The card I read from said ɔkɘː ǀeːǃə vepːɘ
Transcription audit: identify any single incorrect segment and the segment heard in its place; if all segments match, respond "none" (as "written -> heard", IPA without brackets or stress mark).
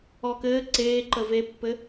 none